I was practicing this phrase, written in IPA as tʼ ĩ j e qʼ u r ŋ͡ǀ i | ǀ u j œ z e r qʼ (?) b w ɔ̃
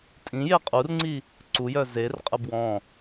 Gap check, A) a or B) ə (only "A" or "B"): B